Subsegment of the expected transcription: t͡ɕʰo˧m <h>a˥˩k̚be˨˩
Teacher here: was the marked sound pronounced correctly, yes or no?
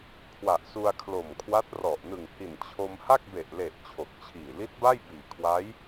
yes